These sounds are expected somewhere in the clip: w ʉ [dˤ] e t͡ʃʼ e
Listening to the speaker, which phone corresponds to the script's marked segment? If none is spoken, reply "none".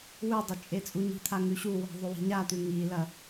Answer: dˤ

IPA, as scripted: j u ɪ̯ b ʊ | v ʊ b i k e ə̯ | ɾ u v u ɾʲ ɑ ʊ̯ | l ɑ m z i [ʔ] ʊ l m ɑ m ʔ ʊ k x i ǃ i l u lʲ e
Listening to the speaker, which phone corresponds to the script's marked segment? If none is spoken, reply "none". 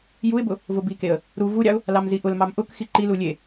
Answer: ʔ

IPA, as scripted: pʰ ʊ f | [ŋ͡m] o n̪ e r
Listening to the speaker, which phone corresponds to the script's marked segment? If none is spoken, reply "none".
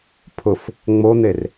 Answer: ŋ͡m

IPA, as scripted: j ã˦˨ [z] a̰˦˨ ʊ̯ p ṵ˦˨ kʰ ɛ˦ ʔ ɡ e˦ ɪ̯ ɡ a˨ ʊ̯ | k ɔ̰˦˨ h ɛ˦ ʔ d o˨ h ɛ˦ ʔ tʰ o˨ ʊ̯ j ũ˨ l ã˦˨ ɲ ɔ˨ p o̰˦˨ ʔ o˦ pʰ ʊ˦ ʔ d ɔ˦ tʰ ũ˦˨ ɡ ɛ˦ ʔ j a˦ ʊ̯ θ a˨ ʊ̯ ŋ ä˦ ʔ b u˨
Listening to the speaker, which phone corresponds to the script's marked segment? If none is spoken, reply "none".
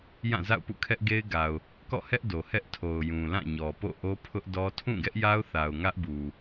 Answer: z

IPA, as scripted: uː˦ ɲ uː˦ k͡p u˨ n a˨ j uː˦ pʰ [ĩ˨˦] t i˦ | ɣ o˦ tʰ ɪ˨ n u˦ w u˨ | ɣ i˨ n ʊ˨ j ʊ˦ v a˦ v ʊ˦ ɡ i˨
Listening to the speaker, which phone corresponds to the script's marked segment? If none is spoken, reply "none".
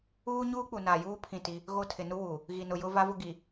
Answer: ĩ˦˨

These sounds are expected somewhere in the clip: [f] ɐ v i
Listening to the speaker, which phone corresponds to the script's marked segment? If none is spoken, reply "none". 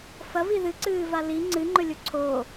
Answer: f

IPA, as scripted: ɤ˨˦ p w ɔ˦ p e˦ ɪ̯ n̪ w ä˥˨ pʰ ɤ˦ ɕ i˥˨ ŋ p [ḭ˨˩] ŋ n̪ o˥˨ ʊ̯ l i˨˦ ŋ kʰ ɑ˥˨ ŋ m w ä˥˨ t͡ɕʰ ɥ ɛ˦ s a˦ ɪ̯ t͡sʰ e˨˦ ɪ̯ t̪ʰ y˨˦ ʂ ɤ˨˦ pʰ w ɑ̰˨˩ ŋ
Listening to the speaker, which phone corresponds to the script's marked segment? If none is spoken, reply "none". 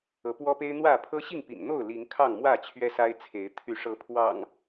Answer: ḭ˨˩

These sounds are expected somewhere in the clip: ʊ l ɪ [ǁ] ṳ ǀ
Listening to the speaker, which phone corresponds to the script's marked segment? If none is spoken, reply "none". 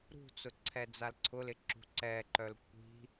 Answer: ǁ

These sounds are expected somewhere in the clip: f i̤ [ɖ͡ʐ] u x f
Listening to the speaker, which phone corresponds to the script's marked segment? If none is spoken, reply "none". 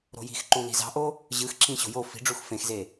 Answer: ɖ͡ʐ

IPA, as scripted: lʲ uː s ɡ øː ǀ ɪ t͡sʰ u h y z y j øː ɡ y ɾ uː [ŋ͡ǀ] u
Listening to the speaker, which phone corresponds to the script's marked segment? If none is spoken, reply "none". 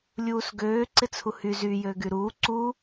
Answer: ǀ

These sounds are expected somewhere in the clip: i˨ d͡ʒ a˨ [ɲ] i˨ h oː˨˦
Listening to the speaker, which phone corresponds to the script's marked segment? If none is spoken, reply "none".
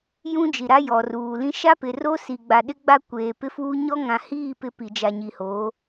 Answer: ɲ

